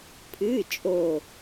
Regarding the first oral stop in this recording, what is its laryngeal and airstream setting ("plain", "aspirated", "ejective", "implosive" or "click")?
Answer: aspirated